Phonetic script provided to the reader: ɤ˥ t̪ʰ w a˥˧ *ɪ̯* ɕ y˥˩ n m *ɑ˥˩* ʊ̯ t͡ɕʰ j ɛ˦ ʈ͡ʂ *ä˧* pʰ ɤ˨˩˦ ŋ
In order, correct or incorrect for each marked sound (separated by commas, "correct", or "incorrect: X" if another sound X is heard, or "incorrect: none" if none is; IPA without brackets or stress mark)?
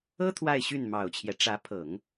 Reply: correct, incorrect: ɑ˨˩, incorrect: ä˧˥